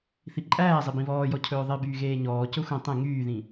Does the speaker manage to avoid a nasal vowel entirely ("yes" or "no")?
no